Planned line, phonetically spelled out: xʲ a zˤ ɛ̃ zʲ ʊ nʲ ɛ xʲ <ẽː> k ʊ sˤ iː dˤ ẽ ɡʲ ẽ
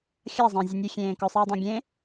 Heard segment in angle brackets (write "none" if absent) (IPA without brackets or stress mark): ẽː